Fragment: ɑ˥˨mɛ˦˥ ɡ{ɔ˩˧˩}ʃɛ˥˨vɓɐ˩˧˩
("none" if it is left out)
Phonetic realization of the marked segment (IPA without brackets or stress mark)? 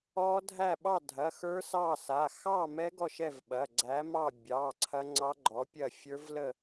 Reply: ɔ˥˨